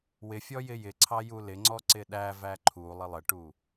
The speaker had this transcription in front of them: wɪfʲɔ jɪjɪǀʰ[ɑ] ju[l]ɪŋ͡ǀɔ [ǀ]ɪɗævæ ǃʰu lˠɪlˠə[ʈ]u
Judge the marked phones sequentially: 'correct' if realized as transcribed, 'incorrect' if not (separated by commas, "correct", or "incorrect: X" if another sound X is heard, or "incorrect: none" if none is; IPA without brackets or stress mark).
correct, correct, correct, correct